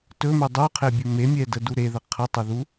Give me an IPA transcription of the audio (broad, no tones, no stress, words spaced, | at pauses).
tɵme dˤuqʰebʲɵ memʲɛdədu ɾeðə qʰətˤɵðu